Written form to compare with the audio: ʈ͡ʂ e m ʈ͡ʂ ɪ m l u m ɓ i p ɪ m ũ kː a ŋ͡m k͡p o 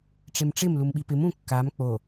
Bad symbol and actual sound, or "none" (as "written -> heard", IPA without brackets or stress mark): ŋ͡m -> m